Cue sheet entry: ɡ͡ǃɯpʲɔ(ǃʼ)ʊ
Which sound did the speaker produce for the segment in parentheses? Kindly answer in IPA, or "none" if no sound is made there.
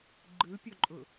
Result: ǃʼ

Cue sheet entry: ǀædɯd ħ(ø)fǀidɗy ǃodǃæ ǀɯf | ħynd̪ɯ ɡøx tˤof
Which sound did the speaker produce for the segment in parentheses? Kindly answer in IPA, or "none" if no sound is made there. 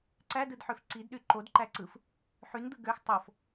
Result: ø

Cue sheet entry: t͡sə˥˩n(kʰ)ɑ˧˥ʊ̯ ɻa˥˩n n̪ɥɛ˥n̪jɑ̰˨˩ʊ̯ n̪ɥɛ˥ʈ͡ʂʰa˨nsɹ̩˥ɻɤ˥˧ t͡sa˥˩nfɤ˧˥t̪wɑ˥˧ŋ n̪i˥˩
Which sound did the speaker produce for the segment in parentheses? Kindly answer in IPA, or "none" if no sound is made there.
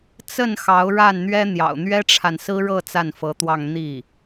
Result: x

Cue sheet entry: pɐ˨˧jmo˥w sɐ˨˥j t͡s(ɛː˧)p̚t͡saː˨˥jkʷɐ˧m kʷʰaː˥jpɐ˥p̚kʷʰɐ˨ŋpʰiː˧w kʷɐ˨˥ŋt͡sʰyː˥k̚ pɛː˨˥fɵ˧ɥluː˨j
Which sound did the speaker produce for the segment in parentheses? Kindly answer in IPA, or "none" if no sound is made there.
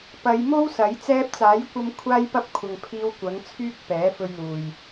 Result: ɛː˧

